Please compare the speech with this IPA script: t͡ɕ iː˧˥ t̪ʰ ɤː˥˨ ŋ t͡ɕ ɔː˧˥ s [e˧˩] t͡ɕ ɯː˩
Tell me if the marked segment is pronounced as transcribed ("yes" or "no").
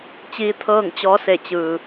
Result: yes